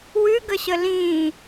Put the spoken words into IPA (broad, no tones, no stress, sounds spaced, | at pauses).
w ʉ ɡ ə ɕ ə l ĩː